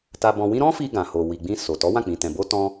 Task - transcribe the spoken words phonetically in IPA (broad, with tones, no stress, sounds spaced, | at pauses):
t a˧ b ɔ̃˧ w ĩ˦ ɾ ɔ̃˦ f i˧ ɡ ã˨ h o˨ w i˨ ɡ͡b ĩ˧ s o˨ t ɔ˨˦ w ã˦˨ k͡p ĩ˨ t ɛ̃˨ b o˧ t ɔ̃˧